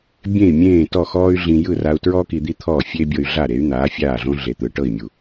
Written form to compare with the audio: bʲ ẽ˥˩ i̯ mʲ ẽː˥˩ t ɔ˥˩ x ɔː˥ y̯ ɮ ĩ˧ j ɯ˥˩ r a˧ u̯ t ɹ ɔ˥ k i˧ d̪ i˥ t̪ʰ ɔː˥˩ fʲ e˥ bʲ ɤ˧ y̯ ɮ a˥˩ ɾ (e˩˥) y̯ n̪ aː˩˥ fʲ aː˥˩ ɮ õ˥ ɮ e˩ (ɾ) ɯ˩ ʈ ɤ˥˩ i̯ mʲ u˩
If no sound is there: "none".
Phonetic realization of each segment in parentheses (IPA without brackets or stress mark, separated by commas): e˩˥, t̪